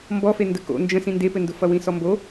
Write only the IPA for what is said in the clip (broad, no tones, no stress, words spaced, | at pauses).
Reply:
mbɔfe ndəko̰ nd͡ʒə̃ sĩndepɘndʊ fʌwĩsɔmbo